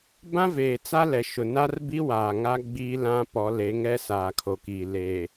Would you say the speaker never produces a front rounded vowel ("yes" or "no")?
yes